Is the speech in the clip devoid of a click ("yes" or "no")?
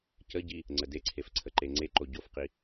no